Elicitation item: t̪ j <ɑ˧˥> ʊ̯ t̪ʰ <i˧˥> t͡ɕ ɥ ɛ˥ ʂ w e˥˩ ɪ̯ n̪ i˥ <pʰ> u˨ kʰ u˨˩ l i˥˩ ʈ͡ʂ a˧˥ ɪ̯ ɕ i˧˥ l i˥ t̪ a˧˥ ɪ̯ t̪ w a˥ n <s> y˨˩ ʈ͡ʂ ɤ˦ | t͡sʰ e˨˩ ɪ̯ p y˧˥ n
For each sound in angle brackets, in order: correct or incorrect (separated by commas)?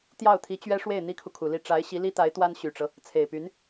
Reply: incorrect, correct, incorrect, incorrect